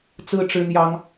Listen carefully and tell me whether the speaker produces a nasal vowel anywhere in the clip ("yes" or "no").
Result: no